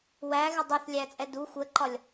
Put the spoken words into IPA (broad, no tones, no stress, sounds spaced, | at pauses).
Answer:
w æ ɣ ɪ dˤ u θ lʲ æ t͡sʼ ɛ d u xʷ ə ǃ ɒ lʲ